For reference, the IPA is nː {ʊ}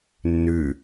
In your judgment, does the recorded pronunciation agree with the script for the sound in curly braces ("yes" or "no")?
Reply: no